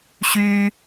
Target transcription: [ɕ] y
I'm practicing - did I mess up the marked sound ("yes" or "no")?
no